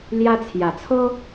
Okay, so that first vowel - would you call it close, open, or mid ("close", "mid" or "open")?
open